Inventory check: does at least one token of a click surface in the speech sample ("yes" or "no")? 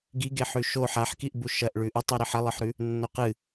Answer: no